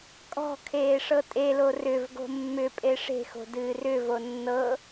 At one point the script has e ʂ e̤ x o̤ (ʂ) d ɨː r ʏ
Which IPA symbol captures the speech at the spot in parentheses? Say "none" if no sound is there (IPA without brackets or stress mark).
none